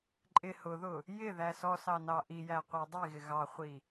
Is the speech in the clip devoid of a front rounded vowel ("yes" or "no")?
yes